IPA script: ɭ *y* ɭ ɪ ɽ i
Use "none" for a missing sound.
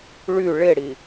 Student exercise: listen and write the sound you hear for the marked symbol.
y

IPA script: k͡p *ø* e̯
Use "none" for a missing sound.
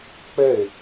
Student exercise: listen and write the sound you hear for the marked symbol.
ɛ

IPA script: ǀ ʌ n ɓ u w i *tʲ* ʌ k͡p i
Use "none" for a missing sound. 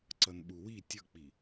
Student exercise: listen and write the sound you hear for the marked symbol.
tʲ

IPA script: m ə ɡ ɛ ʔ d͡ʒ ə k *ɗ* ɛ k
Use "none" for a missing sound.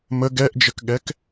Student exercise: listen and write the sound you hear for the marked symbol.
ɠ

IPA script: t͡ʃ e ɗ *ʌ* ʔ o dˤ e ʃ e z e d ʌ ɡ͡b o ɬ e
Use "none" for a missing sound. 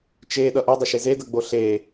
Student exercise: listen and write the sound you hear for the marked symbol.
ʌ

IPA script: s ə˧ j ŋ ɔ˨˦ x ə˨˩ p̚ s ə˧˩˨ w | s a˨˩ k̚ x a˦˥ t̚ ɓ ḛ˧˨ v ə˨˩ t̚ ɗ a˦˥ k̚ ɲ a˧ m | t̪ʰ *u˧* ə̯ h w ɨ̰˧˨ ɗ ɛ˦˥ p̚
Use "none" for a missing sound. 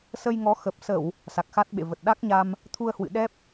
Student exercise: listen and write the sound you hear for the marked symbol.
u˧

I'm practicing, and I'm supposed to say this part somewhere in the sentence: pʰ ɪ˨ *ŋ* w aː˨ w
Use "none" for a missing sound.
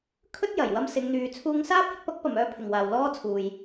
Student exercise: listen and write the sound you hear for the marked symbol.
ŋ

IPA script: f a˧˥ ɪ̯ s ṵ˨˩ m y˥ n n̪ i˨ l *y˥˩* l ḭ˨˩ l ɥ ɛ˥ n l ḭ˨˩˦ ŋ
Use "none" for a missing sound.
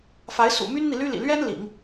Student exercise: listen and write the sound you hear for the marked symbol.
y˥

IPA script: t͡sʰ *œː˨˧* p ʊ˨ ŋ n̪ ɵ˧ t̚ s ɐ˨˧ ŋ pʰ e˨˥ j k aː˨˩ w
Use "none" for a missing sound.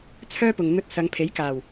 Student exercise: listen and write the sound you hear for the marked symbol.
œː˥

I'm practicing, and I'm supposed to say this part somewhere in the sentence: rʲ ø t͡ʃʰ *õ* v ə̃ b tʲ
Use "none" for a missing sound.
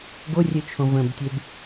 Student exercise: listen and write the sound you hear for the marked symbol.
õ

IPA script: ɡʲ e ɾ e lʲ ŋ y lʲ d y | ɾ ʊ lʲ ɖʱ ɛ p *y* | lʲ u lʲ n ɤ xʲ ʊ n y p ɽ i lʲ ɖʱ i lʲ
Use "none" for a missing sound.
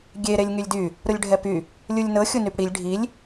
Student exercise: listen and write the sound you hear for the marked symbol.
y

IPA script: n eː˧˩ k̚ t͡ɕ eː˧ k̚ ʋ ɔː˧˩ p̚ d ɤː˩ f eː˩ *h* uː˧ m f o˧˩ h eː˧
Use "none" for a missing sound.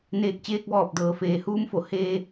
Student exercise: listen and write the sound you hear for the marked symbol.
h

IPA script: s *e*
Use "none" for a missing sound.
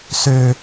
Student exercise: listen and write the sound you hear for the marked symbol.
ø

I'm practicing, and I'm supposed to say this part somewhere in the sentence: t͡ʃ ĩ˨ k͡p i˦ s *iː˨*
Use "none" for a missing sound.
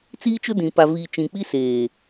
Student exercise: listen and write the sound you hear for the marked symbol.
eː˨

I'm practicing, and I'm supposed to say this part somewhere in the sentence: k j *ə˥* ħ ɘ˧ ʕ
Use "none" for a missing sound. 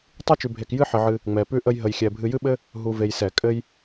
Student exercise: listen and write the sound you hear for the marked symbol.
ɨ˥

